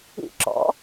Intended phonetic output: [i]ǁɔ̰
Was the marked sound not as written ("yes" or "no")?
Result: yes